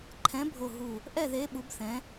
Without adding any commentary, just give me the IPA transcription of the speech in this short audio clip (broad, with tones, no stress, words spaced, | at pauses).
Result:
ǃʰɛ̃˨˦ bʱo˦˨ɦu˦˨ | ʔɛ˦˨ðe˨˦ ɓu˨˦bθɛ̃˨˦